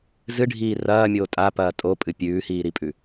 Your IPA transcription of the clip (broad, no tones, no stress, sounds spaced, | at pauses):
z ɨ ɖʱ iː r ɐː mʲ oː tʼ a p ɐː tʼ o pʼ ɨ pʲ ʉː h iː ɾ i pʼ ʉ